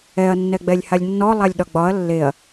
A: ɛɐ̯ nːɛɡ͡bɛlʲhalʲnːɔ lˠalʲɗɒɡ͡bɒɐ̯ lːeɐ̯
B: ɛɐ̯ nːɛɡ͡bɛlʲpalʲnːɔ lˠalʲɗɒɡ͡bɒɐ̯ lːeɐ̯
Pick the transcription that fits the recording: A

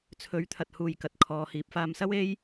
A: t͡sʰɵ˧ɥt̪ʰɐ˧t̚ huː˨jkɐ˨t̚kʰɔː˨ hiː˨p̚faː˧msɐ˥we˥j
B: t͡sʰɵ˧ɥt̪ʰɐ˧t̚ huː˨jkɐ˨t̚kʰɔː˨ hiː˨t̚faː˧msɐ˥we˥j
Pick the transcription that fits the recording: A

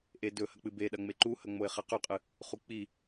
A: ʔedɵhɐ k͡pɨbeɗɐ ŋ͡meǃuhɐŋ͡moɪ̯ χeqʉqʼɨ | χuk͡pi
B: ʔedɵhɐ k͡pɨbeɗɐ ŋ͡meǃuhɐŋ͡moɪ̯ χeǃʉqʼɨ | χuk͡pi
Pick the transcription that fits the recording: A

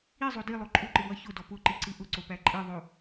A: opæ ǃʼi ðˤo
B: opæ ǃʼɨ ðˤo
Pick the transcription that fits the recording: B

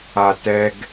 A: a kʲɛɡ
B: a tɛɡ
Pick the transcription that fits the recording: B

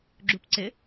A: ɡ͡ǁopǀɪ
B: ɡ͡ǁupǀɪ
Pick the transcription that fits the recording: B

